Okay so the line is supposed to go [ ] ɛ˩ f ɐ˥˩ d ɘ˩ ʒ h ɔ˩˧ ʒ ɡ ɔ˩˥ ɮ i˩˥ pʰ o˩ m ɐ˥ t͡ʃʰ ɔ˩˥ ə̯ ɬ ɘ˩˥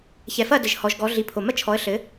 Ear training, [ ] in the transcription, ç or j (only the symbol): ç